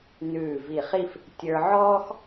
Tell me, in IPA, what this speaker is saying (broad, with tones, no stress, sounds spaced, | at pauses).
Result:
n ʉː˧˩ v i˧˩ χ i˥˧ f | tʲ ə˞˧ ʕ ɔː˥ x